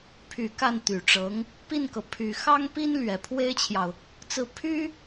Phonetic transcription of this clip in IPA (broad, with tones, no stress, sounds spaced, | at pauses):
pʰ y˨˩ k a˥˩ n t̪ y˨˩ ʈ͡ʂ ɤ˧˥ ŋ | p i˥˩ n k ɤ˩ pʰ y˨˩ x ɑ˥ ŋ p i˥ n l ɥ ɛ˨˩ pʰ w e˥ ɪ̯ t͡ɕʰ j ɑ˨ ʊ̯ | t͡s ɹ̩˥˩ pʰ y˥